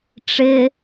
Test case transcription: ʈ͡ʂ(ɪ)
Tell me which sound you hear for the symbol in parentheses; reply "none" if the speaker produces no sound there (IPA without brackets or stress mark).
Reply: ɪ